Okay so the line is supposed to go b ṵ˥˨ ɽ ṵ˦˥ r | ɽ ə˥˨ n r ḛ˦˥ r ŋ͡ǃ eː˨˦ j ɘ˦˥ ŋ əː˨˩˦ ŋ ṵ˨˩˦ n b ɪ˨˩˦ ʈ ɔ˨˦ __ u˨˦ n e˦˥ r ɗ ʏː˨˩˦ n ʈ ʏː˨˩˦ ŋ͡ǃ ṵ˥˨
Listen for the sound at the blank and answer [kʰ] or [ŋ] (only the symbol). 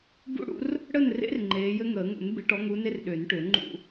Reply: ŋ